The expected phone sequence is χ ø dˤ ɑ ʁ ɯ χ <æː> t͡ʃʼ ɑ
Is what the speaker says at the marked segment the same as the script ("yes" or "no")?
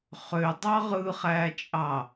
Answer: yes